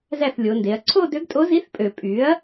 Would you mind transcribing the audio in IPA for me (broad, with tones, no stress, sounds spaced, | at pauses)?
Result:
z æ˥˩ θ lʲ o˩˧ n d e˩˧ ɐ̯ ǀʰ o˥˧ d ø˧˥ ɡ tʼ o˧˥ z i˧˥ θ pʼ ø˨˩ pʼ y˩˥ ɐ̯